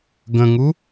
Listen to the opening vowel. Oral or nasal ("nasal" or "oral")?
nasal